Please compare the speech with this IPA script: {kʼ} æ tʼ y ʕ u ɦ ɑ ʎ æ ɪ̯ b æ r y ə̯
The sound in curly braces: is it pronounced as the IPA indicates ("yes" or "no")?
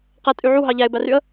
no